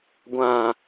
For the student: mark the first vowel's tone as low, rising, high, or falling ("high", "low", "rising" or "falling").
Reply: falling